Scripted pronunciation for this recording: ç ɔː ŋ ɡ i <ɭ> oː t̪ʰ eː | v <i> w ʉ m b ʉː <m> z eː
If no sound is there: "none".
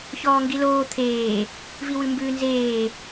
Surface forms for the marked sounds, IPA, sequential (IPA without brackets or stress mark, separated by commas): l, i, n